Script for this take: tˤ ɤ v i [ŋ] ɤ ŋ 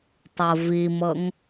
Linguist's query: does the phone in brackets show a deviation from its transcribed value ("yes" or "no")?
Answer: yes